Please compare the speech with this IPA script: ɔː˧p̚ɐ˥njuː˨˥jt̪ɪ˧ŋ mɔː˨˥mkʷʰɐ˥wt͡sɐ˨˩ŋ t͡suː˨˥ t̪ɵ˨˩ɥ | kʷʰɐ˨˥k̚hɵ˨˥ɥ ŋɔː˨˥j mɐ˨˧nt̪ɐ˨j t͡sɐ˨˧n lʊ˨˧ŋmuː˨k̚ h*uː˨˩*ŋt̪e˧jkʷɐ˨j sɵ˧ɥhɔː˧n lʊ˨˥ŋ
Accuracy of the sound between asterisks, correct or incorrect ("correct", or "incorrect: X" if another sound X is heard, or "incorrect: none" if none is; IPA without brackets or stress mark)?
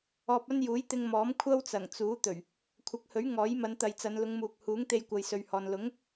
incorrect: uː˨˥